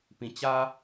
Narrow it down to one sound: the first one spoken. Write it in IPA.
p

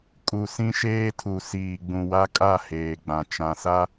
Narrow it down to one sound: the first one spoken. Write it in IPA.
kʼ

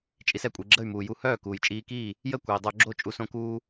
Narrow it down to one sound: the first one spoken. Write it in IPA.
t͡ʃʼ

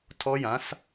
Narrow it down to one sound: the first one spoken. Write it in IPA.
tʰ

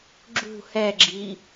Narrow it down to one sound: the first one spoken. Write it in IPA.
ɡ͡ǁ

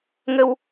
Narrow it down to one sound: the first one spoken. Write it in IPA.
ŋ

